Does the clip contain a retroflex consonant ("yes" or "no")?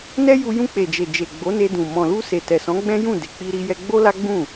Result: no